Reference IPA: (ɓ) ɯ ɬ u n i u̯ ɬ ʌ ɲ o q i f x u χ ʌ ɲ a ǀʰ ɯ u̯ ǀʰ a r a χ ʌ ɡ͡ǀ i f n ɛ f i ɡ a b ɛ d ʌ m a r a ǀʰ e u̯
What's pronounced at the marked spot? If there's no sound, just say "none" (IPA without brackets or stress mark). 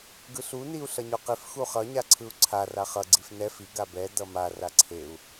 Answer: ɡ